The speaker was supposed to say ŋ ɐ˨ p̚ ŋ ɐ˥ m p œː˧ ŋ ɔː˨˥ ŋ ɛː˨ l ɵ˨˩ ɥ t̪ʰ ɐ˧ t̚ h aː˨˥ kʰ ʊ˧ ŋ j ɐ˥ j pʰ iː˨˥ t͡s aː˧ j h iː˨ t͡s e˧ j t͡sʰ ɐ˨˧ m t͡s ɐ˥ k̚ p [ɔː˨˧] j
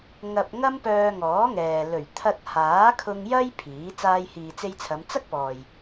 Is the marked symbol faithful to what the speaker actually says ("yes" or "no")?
no